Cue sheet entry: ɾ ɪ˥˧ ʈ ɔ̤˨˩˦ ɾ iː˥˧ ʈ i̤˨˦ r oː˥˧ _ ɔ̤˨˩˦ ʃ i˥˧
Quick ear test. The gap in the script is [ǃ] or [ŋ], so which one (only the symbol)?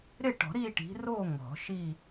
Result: ŋ